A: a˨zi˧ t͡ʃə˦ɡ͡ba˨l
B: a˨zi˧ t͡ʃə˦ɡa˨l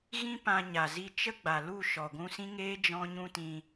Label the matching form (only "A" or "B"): A